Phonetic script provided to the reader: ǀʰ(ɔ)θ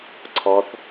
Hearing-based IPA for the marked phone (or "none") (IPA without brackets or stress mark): ɔ